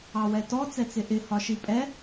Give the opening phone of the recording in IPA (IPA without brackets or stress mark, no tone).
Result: ɑ